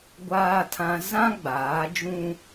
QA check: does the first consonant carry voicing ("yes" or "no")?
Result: yes